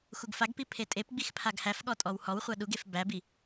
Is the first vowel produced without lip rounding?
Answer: no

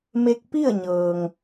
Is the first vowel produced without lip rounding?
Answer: yes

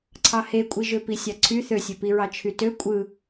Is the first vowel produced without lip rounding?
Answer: yes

